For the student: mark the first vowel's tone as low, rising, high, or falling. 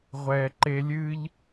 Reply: low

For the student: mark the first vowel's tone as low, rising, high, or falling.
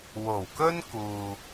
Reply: low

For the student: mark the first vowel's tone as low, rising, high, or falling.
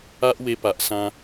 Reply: high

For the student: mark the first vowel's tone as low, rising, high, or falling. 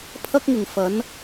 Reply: high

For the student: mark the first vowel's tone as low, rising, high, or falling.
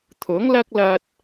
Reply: rising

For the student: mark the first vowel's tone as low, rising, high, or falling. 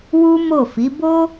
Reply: high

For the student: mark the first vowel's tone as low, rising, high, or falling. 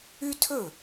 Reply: high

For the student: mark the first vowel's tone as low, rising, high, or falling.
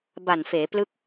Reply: low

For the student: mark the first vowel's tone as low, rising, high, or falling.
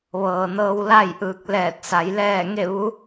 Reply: low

